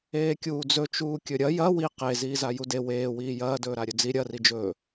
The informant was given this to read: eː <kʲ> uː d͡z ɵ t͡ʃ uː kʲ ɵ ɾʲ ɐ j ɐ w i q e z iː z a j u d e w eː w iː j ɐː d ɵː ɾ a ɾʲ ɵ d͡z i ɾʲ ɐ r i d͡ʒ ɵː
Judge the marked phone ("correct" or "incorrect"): correct